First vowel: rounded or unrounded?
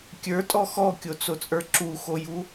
unrounded